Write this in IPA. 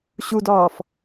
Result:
ɕ u d ɒː f

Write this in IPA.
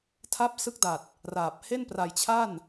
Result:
tʰ a˦˥ p̚ s ɯ˦˥ k̚ d a˨˩ t̚ | r aː˨˩ p̚ h e˥˩ n p r a˧ j t͡ɕʰ a˥˩ n

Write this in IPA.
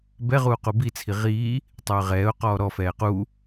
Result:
b ɛ ʁ uː q u b i t͡sʰ i ʁ iː | tˤ ø ə̯ ʁ ɛː ʊ̯ q ɔː ɾ ɔ f ɛː q u

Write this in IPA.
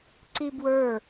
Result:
ǀ i b w ə˞

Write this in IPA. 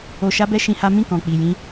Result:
o˧ ʃ a˦ b ɛ˦ ʃ ĩ˧ h a˦ m ĩ˦˨ k ɔ̃˨ k͡p i˨ j ĩ˧

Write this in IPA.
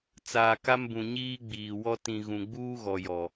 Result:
t͡s aː˨ k a˦ m b ũ˨ ɲ iː˦ ɡ͡b iː˨ w ɔ˦ t ĩ˨ ɣ ũ˨ ɡ͡b uː˦ ɣ ɔ˨ j ɔ˨

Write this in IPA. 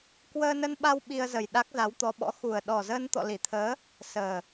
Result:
k w əː˧ n ə˧ n ɓ a˧ w ɓ i˧ ə̯ z ə˨˩ j ɗ a˦˥ k̚ z a˨˦ w t̪ ɔ˨˦ ɓ ɔ̰˧˥ x u˨˩ ə̯ ɗ ɔ˨˩ z əː˧ n t̪ ɔ̰˧˨ l i˧˩ t̪ʰ əː˨˦ | s əː˨˩

